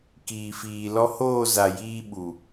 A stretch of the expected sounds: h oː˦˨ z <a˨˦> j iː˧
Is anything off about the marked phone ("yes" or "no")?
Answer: yes